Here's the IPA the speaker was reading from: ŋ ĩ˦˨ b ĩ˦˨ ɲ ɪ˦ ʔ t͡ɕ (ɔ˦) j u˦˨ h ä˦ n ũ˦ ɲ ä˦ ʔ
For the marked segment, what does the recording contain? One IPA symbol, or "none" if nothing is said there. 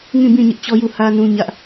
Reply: ɔ˦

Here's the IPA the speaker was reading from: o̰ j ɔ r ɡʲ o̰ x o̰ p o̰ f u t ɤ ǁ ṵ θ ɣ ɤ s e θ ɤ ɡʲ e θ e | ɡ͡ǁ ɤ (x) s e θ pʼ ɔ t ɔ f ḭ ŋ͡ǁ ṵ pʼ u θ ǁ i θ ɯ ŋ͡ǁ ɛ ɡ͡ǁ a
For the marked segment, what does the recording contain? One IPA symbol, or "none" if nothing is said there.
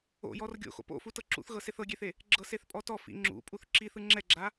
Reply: none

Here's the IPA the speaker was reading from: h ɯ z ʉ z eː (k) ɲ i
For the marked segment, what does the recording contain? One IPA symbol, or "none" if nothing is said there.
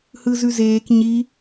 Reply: k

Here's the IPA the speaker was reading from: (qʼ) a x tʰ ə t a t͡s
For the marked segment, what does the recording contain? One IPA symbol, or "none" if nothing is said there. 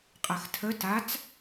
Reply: qʼ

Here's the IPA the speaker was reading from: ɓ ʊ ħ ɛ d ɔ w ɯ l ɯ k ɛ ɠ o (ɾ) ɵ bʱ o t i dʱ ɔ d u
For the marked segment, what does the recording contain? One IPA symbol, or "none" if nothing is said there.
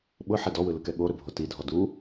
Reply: ɾ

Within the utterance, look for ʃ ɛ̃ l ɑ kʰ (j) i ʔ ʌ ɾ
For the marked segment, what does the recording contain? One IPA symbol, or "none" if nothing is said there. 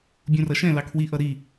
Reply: w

